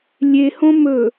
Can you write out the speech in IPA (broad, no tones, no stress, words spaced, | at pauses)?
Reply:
lʲehõ mɵ